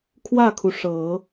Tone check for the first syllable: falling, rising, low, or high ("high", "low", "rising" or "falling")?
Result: falling